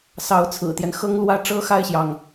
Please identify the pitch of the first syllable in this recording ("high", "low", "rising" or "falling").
rising